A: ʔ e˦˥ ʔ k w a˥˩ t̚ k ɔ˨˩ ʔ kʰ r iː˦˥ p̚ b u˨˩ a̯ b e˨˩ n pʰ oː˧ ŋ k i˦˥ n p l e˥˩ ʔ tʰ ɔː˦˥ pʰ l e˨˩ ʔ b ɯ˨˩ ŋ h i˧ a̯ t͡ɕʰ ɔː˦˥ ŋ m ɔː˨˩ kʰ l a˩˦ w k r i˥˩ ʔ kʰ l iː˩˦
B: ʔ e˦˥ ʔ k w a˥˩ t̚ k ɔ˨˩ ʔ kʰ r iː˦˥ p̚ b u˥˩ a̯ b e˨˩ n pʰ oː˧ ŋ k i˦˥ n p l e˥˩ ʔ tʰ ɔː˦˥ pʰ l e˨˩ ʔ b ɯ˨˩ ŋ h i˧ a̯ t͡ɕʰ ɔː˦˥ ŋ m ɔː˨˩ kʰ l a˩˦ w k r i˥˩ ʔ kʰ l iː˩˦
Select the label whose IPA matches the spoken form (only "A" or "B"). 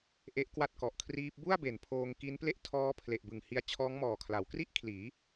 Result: B